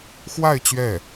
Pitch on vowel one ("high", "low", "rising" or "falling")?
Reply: falling